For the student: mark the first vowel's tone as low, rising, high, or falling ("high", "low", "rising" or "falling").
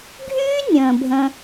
high